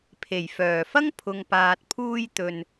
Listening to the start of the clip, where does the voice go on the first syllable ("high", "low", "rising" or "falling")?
low